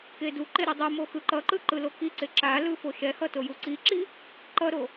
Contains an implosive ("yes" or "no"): no